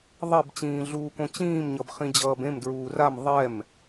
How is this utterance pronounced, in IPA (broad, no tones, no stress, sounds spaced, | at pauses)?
ðˤ ɛ b t͡ɕ ĩː ɮ uː k õ t͡ɕ ĩː m ɲ ʌ b χ ĩ d͡ʑ ʌː b ẽ m d ɹ uː r a m ðˤ ɛ m